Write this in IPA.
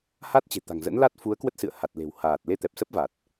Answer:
h a˦˥ t̚ t͡ɕ e̤˨˩ t̪ a̤˨˩ ŋ z ə̰˧˥ n l a˦˥ t̚ f u˨˦ ə̯ k w ə˦˥ t̚ s ɨ̰˧˨ ə̯ h a˨˩ t̚ l e̤˨˩ w h aː˨˩ t̚ l e˧ t̪ ɛ˨˩ p̚ s ə˦˥ p̚ v a˨˩ t̚

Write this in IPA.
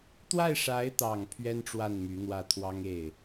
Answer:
t̪ w a˥˩ ɪ̯ ʂ a˧˥ ɪ̯ t̪ ɑ˨˩ ŋ pʰ ɥ ɛ˥ n ʈ͡ʂ w a˥˩ n m y˧˥ n̪ w ä˥˩ t̪ʰ w ɑ˥ ŋ e˥˩ ɪ̯

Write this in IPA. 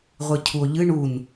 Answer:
ʁʷ ɨ cʰ u o̯ ʎ ɨ ɳ u n

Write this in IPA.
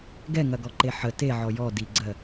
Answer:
ɡ ɛ ŋ ɐ ɡ ɔ ǃ e ħ ə t e ʕ ɔ j ɔ d i ɡ͡ǀ ɜ

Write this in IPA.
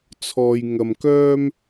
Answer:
t͡sʰ ɔː˧ j ŋ ɐ˧ m k œː˥ m

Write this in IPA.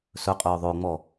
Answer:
s ɵ qʼ ɵː ðˤ o ŋ͡m ɔ

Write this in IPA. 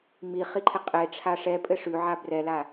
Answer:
m i χ i ǃʰ ɪ qʼ e ʈ͡ʂʰ a ʂ ɛ pʼ ɘ ʂ ʉ ʕ a b r ɛ l a

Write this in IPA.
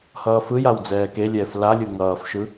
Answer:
h ʌː f ɯ j a w d͡z ɛː k e lʲ ɛː f l a lʲ ɯ ŋ ʌː f ʃ ɯ

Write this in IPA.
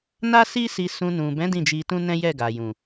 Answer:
n a˦ s i˦ s i˧ s ũ˧ n ũ˨ b ɛ̃˨˦ d ĩ˦˨ d͡ʒ i˧ t ũ˦ n ɛ̃˦ j ɛ˦˨ ɡ a˨ j ũ˨

